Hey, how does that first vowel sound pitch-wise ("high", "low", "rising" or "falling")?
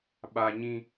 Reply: high